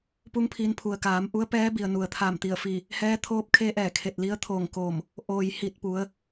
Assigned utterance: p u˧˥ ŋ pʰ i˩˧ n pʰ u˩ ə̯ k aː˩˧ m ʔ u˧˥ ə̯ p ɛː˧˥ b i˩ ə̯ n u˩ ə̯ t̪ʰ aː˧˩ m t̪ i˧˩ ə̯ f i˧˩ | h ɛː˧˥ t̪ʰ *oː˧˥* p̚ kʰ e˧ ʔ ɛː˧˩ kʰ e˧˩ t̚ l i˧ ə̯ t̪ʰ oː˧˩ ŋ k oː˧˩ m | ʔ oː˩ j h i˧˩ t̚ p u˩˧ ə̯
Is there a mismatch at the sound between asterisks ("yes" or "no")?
no